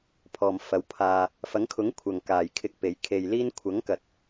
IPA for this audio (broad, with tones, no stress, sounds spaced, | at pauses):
pʰ ɔː˨ m f ɐ˨˧ w pʰ aː˧ | f ɐ˨˥ ŋ kʰ ʊ˨˥ ŋ kʷʰ ɐ˨ ŋ k aː˨ j kʰ ɪ˧ k̚ p e˨˥ j kʰ e˧ j l iː˥ n kʷʰ ɐ˨˥ ŋ k ɐ˨ t̚